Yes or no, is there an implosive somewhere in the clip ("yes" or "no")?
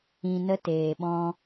yes